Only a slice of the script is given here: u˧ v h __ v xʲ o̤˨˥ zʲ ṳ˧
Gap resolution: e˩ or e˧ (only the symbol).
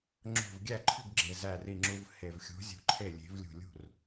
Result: e˩